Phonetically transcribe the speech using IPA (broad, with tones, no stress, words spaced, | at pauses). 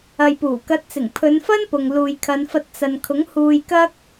ɐ˨jpuː˨˩kɐ˨˥t̚ t͡sɪ˨˩ŋpʰɵ˨˧nfɐ˥n pʊ˨ŋluː˨jkʰɐ˨˧nfɐ˧t̚ t͡sɐ˨nkʰʊ˨˥ŋ huː˧jkɐ˥k̚